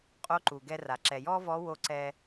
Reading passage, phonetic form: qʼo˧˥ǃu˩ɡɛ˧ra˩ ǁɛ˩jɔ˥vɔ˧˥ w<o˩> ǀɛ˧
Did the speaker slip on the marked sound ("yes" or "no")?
yes